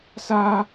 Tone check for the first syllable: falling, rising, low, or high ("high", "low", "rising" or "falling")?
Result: high